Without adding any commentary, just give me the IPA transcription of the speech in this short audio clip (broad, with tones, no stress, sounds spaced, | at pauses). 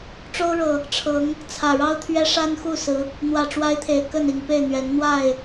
ʈ͡ʂ o˦ ʊ̯ ɻ ɤ˨˩ | ʈ͡ʂʰ ɤ˨˦ ŋ | t͡sʰ ä˨˩ ɻ ɑ˦ ʊ̯ t̪ʰ ɥ ɛ˦ ʂ a˦ n x u˥˨ s ɹ̩˨˦ | n̪ w ä˨˩ ʈ͡ʂ w a˦ ɪ̯ t̪ʰ e˨˩ ɪ̯ k ə˥˨ n i˨˩ ŋ p e˥˨ ɪ̯ n̪ ɥ ɛ˨˦ n n̪ w a˥˨ ɪ̯